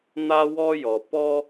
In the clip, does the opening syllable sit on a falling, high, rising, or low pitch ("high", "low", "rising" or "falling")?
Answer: high